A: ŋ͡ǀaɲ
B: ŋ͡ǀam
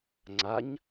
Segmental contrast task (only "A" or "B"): A